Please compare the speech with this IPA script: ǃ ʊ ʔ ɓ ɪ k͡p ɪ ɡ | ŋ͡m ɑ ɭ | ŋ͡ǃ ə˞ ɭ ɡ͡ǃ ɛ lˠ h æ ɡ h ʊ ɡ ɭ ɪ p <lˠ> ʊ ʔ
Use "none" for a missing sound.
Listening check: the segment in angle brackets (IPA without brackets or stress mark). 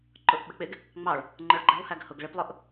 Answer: lˠ